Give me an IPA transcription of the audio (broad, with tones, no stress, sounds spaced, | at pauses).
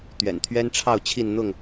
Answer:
t̪ ɥ ɛ̰˨˩ n t̪ʰ ɥ ɛ˦ n ʈ͡ʂʰ ɑ˥˨ ʊ̯ t͡ɕʰ i˥˨ n n̪ ʊ˥˨ ŋ